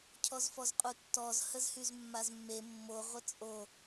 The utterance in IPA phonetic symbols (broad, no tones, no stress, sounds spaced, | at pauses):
cʰ ɔ z f ɔ z qʼ u tː ɔ z h ə z h y z mː a z mː e mː o ʁʷ ə t͡sʼ o